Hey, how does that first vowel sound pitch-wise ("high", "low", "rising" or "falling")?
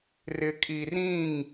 low